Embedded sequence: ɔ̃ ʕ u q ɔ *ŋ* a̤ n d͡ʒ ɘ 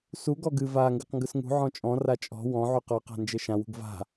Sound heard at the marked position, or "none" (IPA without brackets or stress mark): q